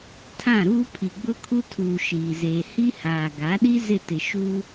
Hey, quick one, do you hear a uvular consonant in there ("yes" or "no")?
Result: no